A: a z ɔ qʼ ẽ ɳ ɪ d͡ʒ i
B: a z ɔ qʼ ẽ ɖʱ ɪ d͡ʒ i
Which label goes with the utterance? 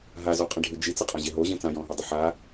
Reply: B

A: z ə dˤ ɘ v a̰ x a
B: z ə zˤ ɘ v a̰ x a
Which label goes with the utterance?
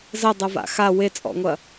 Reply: A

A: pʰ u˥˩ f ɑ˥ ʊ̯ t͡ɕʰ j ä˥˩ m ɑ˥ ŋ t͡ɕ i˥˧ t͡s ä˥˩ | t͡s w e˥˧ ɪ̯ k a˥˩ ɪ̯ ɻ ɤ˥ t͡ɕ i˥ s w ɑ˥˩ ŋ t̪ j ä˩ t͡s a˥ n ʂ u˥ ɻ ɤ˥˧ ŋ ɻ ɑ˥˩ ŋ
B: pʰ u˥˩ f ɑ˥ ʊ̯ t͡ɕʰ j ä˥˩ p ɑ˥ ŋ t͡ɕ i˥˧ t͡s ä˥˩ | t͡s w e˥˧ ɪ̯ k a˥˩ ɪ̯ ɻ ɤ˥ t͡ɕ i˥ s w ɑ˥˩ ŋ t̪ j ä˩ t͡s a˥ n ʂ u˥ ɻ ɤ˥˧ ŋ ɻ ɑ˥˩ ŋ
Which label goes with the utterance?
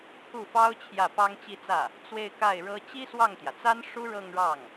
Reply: B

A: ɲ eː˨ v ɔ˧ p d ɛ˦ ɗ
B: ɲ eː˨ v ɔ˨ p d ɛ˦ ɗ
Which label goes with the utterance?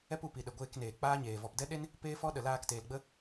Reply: B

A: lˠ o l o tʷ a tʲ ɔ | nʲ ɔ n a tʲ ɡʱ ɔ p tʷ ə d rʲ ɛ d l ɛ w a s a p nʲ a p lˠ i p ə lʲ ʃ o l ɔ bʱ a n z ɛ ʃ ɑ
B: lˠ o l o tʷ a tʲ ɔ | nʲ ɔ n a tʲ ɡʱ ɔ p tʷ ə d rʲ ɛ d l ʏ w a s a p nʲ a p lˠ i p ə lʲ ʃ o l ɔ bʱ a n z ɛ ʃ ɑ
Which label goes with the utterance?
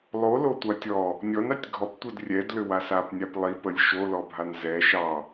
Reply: B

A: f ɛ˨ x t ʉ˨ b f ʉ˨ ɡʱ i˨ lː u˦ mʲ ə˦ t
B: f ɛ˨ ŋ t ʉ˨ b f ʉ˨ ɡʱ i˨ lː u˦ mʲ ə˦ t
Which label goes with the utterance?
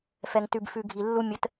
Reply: B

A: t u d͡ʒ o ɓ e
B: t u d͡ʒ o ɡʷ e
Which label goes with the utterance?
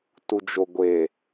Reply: B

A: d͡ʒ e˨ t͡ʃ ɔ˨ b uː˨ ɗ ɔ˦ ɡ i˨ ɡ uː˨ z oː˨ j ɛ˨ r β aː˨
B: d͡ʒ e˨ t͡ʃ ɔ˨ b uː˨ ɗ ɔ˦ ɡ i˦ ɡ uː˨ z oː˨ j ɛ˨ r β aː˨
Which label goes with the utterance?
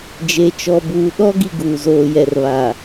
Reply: A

